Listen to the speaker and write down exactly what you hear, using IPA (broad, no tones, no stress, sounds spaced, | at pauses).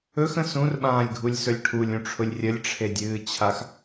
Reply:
ɵ x ə̃ s ũ r ɓ ãː lʲ ɡʱ u lʲ s ɵ lʲ ʈʰ u lʲ ũ ʈ͡ʂʰ ʊ lʲ rʲ ə lʲ ʈ͡ʂʰ e dʲ ɨː t͡ɕʰ a x